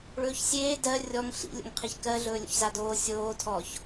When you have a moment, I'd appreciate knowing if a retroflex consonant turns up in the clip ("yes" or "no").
yes